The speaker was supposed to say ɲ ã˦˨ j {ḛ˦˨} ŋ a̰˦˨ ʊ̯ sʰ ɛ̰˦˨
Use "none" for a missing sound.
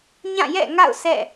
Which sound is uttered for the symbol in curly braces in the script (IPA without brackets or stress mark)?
ɛ̰˦˨